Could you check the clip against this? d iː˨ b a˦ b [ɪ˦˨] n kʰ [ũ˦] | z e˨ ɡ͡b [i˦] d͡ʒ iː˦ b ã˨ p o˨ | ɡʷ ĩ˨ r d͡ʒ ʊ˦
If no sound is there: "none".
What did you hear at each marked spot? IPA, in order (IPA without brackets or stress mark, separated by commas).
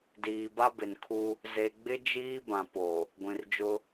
ɪ˨, u˦, ɪ˦